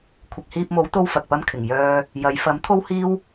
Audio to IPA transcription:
kʷʰ ɪ˨ k̚ h iː˧ p̚ m o˨˥ w t̪ o˥ w f ɐ˨ k̚ p ɐ˥ m kʰ ɪ˨˩ ŋ j œː˧ | j ɐ˨˧ j f ɐ˨˥ m t̪ʰ o˥ w h iː˥ w

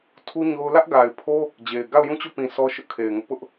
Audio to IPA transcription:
tʰ u˦ ɲ o˦ ʊ̯ l ä˦ ʔ ɡ a˨ ɪ̯ pʰ o˦ | d͡ʑ e˨ ɪ̯ ɡ a˦˨ ʊ̯ j ũ˦˨ t͡ɕ o˦˨ p ĩ˨ s ɔ˦ ʃ ʊ˦ ʔ kʰ e˨ ɪ̯ ŋ ʊ˦ ʔ p ʊ˦ ʔ

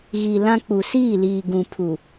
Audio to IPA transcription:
ɣ i˨ l ã˦ k͡p u˨ s iː˦˨ l iː˨ ɡ ũ˨ pʰ u˨

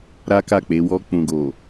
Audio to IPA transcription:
ɾ a˦ k a˦˨ k͡p e˨˦ w ɔ˧ k͡p ũ˨ ɡ o˨

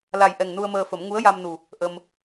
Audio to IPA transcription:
l a˨˩ j ʔ ɛ˨˩ ŋ n u˧ ə̯ m əː˧ f ə˨˩˦ m ŋ u˧˥ ə̯ j a˧ m n u˨˩ | ʔ ə˧ m

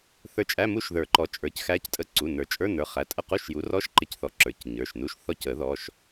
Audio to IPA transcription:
θ ə˞˧˥ t͡ʃʼ æ˧˥˧ m u˥˨ ʃ ð ə˞˨˩˦ ǃ ɔ˩˥ t͡ʃʼ ə˞˩˧˩ c x æ˧˥ c tʼ ə˧˥˧ ǀ u˩˧˩ n ə˞˨˩˦ t͡ʃʼ ə˞˧˥˧ n ə˞˩˧˩ χ æ˩˧˩ tʼ ə˥˨ q u˧˥˧ ʃ j u˩˥ r ɔ˧˥˧ ʃ ǃ ɪ˥˨ c θ ɔ˧˥ ǁ ə˞˨˩˦ c ɲ ə˞˩˧˩ ʃ n u˧˥˧ ʃ θ ɔ˥˨ c ə˨˩˦ ð ɔ˩˧˩ ʃ

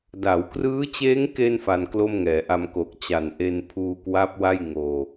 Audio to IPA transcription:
d a˩˦ w k r ɯː˦˥ t͡ɕ eː˦˥ ŋ k e˧ n f a˧ n k l o˥˩ m ŋ ɛː˩˦ ʔ a˧ m k o˨˩ k̚ t͡ɕ a˨˩ n ʔ e˧ n pʰ uː˧ k w a˦˥ p̚ w a˥˩ j ŋ oː˧

